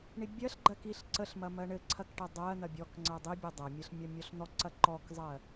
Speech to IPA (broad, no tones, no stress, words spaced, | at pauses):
ɳibʲɜɬɡ͡ǃɜkiɬ ǀəɬmɐ mɜɳɘ ǀʰɐkʈɐ dˤɜ n̪ɐbʲɔkŋ͡ǀɜ dˤibʲɘ dˤɐmʲɘɬ mʲɔmʲɔɬn̪ɔǀɐ ǃɔkzˤɜ